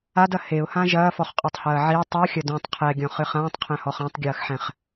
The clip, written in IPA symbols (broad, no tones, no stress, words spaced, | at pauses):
adɐ heʊ̯hã ʒɐːfɔχqʼɔtˤhɐː ʕi tˤuxʲɐ dũtˤ qʰɛɡʲɔ̃χɨ χãːtˤqʰɛ̃hɔχ ãtˤɡʲɐːxħɛ̃χ